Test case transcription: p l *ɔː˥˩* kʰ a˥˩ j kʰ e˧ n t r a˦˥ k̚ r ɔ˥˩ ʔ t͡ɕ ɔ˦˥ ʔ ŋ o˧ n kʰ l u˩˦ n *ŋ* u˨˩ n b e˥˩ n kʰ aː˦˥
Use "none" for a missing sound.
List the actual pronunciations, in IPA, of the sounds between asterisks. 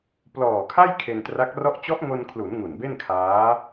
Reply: ɔː˨˩, ŋ

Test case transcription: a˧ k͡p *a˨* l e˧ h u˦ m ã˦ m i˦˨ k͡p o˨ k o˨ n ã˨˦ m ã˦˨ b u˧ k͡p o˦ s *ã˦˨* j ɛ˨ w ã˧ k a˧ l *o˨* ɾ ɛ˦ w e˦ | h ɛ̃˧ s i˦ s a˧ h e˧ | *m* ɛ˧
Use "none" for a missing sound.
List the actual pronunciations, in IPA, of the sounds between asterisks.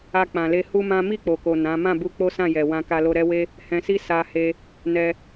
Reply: ã˨, ã˦˨, o˧, n

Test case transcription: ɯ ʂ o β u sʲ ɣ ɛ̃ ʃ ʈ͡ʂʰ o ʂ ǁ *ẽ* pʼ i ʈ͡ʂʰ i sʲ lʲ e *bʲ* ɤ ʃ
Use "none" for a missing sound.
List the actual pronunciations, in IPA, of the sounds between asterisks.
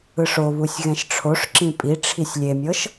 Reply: ĩ, mʲ

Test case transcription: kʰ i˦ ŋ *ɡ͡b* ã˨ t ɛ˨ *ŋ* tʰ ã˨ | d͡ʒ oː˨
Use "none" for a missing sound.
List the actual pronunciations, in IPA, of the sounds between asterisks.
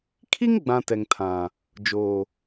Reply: ɡ͡b, ŋ

